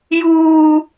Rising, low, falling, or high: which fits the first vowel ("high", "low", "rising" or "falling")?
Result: high